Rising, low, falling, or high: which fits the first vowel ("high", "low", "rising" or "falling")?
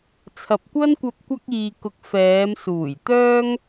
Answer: low